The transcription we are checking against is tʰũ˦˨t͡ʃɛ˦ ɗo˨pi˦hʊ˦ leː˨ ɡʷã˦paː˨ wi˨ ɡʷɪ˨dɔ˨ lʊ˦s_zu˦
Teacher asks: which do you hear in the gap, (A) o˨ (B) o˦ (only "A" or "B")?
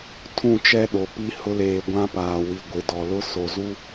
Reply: A